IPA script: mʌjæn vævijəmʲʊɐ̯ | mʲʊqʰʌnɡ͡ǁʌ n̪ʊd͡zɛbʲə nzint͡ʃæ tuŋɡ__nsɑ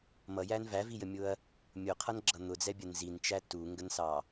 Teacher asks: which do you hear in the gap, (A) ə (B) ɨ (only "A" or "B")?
A